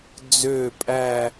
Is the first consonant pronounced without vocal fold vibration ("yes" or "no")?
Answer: no